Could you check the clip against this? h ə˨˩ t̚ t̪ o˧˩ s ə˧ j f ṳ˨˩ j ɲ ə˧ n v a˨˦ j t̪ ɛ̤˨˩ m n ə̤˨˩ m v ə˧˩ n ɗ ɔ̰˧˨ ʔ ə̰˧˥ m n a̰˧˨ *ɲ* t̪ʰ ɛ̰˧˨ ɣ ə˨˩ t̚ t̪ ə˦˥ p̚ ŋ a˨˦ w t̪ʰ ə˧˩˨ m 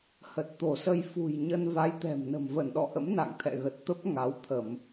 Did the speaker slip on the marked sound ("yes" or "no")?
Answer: yes